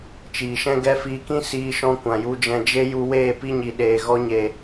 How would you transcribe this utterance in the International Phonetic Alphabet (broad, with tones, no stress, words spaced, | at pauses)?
t͡ʃiː˨ʃɛ̃˦ɡɛ˦fiː˧ kĩ˦siː˧ʃɔ̃˧ kʷã˨ju˧d͡ʒɛ̃˧ d͡ʒe˦ ju˧weː˦˨ pi˦ɲi˨ ɗeː˨ɣɔ˧ɲe˨